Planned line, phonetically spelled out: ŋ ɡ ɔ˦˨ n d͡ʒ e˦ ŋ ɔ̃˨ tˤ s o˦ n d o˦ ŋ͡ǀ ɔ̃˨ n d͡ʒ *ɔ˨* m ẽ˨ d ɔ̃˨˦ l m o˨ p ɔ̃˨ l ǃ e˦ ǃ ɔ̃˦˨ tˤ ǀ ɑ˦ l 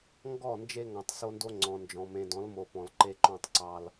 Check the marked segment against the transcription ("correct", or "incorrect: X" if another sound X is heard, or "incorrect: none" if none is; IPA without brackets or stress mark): incorrect: ɔ̃˨